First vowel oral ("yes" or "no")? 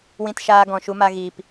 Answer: no